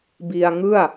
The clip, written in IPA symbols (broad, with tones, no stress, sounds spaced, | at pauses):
b i˧ a̯ ŋ ɯ˥˩ a̯